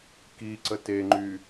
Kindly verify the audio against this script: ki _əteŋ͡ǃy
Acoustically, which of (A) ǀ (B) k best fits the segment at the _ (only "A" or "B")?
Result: A